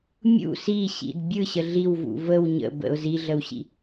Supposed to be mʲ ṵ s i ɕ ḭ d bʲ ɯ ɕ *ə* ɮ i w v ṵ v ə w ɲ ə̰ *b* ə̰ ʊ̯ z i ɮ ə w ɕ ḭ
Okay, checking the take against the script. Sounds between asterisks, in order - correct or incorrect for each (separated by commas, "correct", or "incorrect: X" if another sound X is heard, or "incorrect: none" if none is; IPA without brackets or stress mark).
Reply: correct, correct